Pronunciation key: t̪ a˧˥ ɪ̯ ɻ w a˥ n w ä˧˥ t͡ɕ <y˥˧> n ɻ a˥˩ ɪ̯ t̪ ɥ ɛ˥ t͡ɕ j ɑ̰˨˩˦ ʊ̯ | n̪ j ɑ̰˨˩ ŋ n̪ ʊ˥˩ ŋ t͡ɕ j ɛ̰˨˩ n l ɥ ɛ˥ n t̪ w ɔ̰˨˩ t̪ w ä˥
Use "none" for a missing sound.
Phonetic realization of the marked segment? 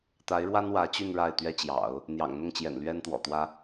y˥˧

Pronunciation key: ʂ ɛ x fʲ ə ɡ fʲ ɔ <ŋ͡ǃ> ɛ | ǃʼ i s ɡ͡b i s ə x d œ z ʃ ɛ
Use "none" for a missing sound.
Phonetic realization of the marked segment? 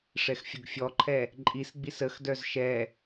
ǃʰ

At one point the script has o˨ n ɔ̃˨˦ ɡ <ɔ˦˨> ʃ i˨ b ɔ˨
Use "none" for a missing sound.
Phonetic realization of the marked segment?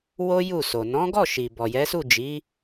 ɔ˦˨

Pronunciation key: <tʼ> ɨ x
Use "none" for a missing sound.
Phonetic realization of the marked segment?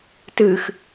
t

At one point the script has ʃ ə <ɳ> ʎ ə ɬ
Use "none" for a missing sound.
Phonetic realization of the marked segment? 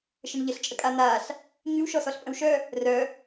ɳ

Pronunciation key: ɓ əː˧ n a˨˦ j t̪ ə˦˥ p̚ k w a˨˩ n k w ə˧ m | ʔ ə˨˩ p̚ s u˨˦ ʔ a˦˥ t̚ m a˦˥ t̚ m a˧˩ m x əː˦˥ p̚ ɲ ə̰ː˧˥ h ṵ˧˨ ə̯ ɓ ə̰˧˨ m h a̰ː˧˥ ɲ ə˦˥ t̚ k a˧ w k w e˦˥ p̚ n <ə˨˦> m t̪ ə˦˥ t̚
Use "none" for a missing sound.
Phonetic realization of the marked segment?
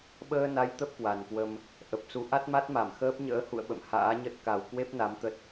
a˨˦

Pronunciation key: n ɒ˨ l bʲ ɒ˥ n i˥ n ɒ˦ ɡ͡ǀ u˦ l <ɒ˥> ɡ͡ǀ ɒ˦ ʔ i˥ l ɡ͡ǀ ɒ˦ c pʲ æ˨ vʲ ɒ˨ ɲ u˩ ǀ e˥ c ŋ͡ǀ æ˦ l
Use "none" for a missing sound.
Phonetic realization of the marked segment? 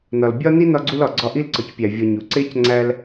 ɒ˩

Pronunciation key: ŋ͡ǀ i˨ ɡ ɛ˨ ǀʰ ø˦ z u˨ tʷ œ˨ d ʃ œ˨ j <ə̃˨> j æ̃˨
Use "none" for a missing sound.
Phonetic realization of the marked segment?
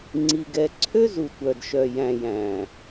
æ̃˨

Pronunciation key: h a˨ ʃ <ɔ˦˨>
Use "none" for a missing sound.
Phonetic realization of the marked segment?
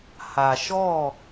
ɔ˦˨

